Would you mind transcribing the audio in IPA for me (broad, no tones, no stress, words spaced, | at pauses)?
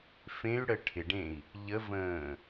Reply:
fẽy̯ ɽəʈʰɪɖẽi̯ | ʎəvə̃ː